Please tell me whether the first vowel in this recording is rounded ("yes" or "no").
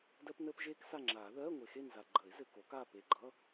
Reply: no